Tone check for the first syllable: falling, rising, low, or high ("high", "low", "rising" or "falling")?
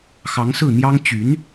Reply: rising